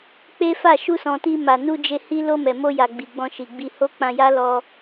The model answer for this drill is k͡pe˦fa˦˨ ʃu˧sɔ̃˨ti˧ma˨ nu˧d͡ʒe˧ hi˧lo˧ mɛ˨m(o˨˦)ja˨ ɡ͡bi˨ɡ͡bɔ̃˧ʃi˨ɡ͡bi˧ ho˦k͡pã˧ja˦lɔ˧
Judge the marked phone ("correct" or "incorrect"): incorrect